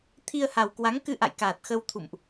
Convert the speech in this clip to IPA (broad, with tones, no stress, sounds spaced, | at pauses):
t̪ʰ i˧ ə̯ h a˨˩ w k w a˨˦ ŋ k ɨ˧ ʔ a̰˧˨ j k aː˨˩ t̚ x ə˧ w t̪ʰ ṵ˧˨ m ʔ